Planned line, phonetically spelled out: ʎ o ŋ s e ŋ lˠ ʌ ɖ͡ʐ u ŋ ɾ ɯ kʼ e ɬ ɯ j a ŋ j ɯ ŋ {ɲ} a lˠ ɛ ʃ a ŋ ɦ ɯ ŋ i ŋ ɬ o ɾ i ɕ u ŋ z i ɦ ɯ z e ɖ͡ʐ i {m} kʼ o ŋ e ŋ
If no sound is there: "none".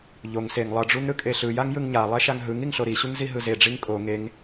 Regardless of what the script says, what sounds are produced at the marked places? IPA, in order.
ɲ, ŋ

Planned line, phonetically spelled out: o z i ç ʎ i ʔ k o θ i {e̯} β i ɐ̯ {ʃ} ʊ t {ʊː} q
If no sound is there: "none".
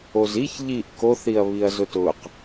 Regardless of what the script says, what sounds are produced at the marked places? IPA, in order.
ɐ̯, z, ʊː

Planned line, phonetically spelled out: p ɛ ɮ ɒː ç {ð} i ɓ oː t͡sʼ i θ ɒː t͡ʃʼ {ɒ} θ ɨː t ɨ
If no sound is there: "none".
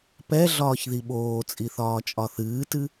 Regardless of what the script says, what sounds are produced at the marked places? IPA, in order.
ð, ɒ

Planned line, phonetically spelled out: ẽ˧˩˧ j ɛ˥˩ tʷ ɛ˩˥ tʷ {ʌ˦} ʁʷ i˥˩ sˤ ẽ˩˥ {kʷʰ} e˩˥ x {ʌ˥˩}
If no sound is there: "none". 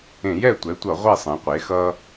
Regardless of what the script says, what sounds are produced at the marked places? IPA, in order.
ʌ˧˩˧, qʷ, ʌ˦

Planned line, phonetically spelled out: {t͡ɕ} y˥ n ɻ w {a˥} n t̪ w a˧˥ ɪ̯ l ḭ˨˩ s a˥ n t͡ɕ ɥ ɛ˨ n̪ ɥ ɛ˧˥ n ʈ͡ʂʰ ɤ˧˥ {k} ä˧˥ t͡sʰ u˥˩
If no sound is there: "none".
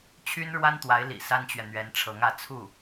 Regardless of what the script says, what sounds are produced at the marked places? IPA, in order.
t͡ɕʰ, a˥, ŋ

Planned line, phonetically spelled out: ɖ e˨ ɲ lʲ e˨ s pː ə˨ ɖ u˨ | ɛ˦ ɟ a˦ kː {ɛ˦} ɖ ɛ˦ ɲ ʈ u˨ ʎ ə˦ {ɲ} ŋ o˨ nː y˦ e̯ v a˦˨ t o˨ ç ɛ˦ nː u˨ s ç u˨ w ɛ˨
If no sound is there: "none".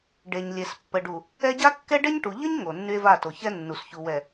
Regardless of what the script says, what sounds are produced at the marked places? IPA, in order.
ɛ˦, ɲ

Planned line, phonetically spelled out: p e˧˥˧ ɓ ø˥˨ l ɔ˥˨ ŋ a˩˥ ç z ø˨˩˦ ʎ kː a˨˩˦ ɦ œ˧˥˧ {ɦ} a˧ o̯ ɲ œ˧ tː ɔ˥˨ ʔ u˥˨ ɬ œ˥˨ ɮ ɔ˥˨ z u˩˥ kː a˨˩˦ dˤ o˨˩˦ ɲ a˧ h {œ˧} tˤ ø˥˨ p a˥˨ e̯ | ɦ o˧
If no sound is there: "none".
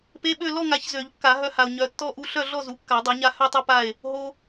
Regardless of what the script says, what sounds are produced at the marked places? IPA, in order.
h, œ˥˨

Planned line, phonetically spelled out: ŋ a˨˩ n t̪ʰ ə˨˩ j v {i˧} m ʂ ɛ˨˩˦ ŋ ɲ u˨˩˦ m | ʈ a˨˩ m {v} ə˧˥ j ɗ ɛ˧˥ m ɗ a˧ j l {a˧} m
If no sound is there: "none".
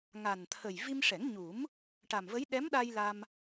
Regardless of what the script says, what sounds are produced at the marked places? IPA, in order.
i˧, v, a˧

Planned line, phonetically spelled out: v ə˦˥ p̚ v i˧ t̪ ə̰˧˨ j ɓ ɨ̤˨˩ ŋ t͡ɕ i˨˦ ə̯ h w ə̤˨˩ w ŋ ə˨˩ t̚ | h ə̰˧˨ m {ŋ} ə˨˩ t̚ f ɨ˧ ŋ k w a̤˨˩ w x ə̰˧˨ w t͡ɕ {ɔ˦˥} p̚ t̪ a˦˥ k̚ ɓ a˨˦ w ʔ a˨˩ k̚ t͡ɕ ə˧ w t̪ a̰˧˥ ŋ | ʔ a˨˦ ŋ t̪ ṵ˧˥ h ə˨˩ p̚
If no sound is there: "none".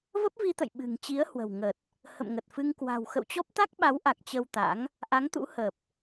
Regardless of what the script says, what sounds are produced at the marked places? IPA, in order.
ŋ, ɔ˦˥

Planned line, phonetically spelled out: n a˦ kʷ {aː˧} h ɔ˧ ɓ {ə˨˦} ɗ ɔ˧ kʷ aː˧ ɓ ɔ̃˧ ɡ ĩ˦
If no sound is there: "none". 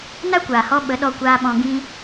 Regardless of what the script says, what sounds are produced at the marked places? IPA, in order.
aː˨, ə˨˦

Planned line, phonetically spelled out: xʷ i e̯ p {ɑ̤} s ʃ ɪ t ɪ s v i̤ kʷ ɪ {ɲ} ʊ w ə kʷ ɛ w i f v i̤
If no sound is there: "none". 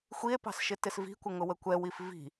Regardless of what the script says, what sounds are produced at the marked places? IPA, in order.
ɑ̤, ŋ

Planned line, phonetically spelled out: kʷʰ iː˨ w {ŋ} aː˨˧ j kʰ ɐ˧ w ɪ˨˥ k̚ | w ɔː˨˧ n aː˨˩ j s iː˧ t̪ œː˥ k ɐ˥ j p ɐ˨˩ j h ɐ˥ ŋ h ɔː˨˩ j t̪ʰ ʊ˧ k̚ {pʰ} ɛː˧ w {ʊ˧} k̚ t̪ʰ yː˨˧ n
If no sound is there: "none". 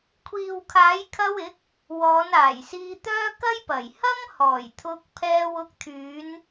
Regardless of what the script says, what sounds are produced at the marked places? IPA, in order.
kʰ, pʰ, ʊ˧

